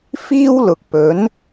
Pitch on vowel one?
high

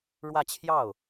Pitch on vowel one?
falling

